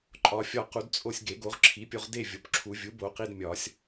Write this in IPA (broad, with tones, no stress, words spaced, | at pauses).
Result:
ǃʼɒ˨˩˦fʲɒ˧qu˨˩˦d t͡sʼo˧sʲ ɡe˨˩˦ɡo˩˥ʁ ǁʰi˩˥pʲo˧ʁde˥˨ vʲo˩˥pǁʰu˨˩˦ vʲu˩˥bo˨˩˦qi˧d mʲɒ˨˩˦sʲ